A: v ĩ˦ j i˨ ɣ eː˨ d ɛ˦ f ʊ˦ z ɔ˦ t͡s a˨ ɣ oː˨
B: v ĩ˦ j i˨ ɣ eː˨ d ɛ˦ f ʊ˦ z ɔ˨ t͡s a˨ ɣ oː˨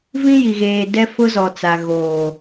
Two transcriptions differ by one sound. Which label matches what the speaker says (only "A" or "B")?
B